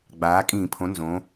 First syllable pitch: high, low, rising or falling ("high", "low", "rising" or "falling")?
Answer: rising